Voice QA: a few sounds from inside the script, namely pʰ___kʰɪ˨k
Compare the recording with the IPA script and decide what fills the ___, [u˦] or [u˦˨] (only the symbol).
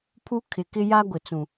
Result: u˦